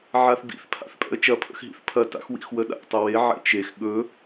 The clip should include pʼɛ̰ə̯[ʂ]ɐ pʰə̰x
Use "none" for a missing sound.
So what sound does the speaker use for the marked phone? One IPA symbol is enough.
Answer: t͡ʃ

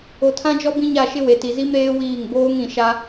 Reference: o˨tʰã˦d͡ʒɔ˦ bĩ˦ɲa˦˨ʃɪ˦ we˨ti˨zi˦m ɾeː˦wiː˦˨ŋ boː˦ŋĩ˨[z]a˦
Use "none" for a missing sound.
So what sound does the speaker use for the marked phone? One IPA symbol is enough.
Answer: ʃ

